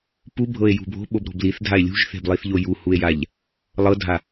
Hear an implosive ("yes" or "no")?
yes